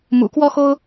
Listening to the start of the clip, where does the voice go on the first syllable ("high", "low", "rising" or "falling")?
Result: low